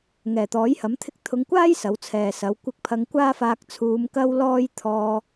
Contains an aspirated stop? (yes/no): yes